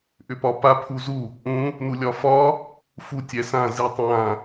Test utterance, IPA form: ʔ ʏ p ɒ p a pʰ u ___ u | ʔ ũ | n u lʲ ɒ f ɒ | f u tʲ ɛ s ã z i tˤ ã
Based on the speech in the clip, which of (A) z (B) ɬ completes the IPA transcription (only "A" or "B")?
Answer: A